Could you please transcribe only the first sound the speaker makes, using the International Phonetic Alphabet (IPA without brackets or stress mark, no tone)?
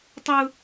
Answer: tˤ